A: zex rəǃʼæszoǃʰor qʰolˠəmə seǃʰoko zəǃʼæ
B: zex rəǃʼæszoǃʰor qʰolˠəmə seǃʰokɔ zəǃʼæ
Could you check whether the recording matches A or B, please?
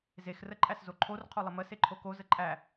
A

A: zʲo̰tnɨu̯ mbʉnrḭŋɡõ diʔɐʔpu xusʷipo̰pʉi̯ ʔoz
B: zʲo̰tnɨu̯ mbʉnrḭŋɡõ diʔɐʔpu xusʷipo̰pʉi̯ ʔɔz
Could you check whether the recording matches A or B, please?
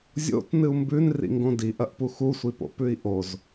A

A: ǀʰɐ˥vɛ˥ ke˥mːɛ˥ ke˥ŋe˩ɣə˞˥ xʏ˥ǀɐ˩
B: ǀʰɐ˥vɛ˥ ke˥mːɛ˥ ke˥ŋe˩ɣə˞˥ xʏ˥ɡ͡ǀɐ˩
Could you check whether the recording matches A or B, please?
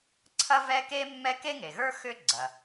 B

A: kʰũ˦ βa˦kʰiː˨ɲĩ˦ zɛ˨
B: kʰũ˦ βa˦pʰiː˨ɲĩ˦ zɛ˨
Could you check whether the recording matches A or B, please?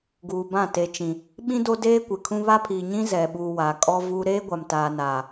B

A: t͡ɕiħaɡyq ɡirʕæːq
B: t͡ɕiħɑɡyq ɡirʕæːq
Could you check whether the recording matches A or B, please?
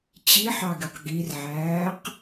B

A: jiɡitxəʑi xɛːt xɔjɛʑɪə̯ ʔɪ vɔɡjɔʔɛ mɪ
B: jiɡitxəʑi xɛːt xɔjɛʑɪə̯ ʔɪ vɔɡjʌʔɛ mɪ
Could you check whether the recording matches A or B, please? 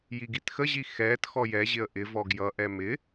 B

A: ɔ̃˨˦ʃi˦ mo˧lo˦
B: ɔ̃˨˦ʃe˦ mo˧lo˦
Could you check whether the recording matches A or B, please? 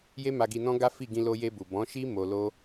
A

